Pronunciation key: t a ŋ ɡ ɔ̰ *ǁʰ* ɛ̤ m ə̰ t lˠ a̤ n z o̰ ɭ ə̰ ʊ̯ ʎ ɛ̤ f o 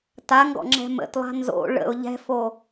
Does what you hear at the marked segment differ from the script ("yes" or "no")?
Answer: yes